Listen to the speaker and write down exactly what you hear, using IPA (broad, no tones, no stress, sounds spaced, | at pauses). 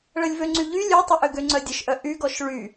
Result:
ɭ ə lʲ v ø ŋ͡ǀ y ʎ y lʲ ø tˤ ø ʔ ø ɡ ø ŋ͡ǀ œ dʲ ə ʃ ʔ œ ʔ y ɡ ɔ ʃ ɭ y